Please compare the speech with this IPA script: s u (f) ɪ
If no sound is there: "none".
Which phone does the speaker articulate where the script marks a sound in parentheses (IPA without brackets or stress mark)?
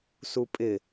pʼ